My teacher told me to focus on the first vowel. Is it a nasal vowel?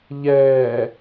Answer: no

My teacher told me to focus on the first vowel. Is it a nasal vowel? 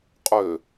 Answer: no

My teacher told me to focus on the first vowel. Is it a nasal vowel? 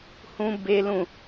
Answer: yes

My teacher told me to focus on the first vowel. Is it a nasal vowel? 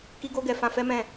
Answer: no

